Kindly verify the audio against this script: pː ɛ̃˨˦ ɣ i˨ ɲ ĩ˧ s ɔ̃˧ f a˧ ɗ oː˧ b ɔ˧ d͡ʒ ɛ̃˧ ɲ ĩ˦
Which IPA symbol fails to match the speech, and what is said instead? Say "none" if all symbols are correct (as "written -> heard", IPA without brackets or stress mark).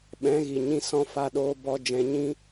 pː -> ɓ